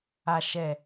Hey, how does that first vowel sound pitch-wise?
low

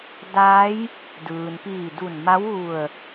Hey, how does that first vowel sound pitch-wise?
rising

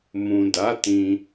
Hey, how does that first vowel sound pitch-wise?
low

